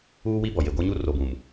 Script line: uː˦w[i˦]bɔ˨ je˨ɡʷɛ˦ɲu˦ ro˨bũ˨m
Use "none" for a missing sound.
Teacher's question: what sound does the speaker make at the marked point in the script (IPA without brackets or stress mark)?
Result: i˦